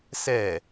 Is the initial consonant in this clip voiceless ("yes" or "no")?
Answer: yes